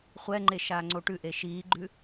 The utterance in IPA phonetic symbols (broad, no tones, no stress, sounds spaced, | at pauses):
χʷ ɛ ŋ͡ǃ e ʃ aː ŋ͡ǀ o ʈ ʉ ʔ e ʃ iː ɡ͡ǃ ʉ